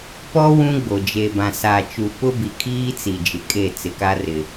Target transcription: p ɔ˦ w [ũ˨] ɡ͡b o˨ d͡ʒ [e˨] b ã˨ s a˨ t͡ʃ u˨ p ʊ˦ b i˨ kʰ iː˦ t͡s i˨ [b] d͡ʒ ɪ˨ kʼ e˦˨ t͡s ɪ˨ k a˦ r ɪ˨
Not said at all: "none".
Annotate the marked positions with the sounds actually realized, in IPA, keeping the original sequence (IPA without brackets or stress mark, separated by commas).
ũ˦, e˨, none